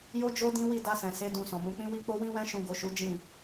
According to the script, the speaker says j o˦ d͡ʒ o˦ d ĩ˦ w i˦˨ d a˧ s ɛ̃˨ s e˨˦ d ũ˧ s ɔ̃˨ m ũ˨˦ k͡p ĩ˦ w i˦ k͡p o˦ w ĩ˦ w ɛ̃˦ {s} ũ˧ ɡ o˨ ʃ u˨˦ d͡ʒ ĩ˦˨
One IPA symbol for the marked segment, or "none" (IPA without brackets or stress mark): ʃ